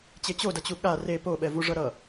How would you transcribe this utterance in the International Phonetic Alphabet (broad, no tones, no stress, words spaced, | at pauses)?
t͡ɕet͡ɕodʌt͡ɕu ɠa re poɓɛvuʐʌ ɾʌ